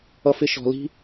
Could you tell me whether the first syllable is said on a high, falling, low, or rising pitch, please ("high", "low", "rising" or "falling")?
high